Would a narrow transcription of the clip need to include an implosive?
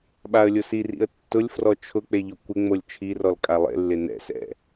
yes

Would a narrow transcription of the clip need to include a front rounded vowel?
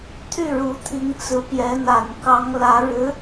yes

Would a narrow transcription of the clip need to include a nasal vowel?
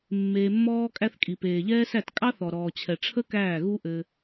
no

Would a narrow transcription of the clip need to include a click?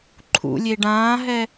yes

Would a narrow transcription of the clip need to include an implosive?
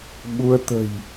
yes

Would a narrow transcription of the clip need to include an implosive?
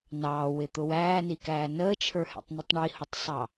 no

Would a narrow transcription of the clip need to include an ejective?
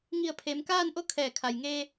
no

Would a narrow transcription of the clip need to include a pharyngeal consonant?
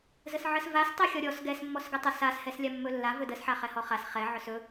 yes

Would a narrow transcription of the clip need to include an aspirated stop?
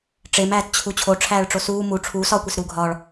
yes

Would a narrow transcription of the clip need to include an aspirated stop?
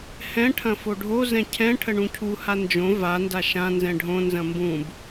yes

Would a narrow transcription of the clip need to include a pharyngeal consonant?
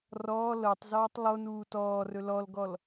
no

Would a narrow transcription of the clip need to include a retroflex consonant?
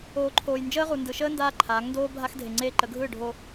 yes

